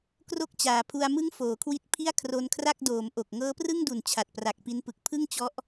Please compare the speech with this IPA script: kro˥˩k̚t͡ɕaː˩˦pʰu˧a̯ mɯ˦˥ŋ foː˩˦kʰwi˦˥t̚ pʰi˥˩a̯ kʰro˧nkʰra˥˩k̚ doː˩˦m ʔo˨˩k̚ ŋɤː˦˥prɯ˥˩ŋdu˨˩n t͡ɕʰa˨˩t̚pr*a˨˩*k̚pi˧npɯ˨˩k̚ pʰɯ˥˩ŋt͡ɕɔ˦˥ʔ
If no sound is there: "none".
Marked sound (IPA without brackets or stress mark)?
a˨˩